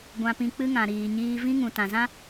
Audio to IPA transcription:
ɡʷã˧pĩ˧k͡pɨ˦ŋã˨ ɾiː˨ɲiː˧ vĩ˦ŋũ˨ tã˨zã˦

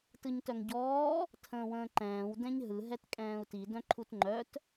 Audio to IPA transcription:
tɯɲtœŋɟɔː | tʰə̃ːwə̃ːǃɛ̃ːw dɛ̃ɲɦɯ ɦɛtkʼɛ̃ːu̯ti dœ̃ǃʰutŋ͡ǃœt

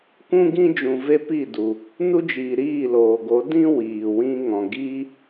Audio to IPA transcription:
kʷũ˦ɡĩ˦d͡ʒũ˨ ve˦pi˦˨du˨ | nu˦d͡ʒiː˨ ɾiː˦˨loː˨ɡo˨˦ dĩ˦ wiː˨wĩ˦ ŋɔ̃˨ ɡiː˦

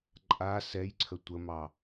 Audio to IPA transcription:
ǃʼa sɛjǀʰə tʷəmɑ

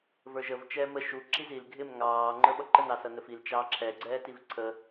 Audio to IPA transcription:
və˞ʒəv t͡ʃɛːmə ʃu ǁizil ɡʱɪm ŋɑː ŋ͡ǃə˞ɓʌǃən ɑsʌnəfil t͡ʃɑːǁʰɛ ɡ͡ǀɛːtivǀʰə

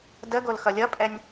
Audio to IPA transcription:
dəɡol xʌlʲʌpʼɛnʲ

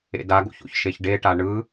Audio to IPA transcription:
ḛdaɡo̰ço̰ç ʃeçɖeʈa ɳɯ

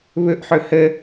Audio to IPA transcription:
βɵʔħɵ hə

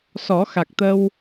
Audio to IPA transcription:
sɔ˨˩˦xa˨˩k̚t̪ə˧w

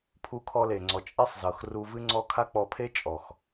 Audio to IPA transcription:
pʰu˧kʰɔ˧le˨ŋ͡ǀɔ˨ t͡ʃʼe˦sˤzɤ˨xru˧vɨ˦ ŋ͡ǀɔ˦ kʰa˦k͡pɔ˧pʰe˦ t͡ʃʼɔ˨x

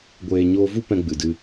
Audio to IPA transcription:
ɡʷeː˨ ɲoː˧vu˦ pɛ̃˧ ɡ͡bɨ˨dɨ˧

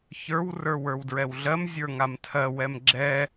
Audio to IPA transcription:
çə˞w rə˞wə˞wdɹɛwɮɜm zʲə˞ŋamtʰɜ wɛmɡ͡ǁɛ

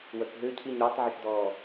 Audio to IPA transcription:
wœkɦøcʰiɲ ɾɔtˤʕəʃdɔː

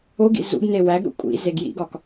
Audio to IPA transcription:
oɡḭ zṵɡne wæɡɾṵ kʷʼḭ zeɡjḭɡɒk

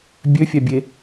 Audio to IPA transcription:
bʲøfʲæ bʲe

